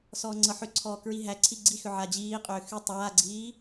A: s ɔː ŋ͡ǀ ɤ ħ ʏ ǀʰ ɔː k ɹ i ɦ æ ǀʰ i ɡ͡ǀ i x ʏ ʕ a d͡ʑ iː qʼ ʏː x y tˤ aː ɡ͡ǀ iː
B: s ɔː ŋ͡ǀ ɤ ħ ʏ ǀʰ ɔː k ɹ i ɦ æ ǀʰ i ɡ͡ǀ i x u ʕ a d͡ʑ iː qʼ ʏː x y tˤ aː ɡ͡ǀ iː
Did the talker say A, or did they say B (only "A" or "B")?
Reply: A